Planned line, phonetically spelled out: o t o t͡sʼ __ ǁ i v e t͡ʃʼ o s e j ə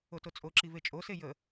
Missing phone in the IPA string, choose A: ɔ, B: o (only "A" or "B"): B